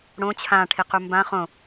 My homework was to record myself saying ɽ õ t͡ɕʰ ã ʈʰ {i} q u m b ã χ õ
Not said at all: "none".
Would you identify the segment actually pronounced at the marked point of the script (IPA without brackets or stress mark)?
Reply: i